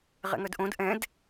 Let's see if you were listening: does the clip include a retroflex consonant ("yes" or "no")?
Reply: no